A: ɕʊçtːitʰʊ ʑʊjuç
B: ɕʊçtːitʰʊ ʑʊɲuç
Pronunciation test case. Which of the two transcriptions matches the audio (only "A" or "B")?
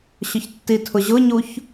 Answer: B